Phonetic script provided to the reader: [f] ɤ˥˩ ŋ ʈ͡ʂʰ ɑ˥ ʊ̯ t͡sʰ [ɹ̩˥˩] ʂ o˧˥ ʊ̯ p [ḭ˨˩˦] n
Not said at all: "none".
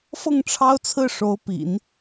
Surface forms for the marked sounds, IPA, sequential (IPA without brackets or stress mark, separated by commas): f, ɹ̩˥˩, ḭ˨˩˦